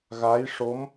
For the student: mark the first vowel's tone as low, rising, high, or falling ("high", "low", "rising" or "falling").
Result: rising